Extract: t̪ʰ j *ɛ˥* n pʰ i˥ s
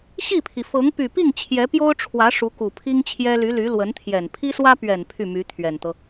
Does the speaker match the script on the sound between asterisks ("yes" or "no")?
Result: no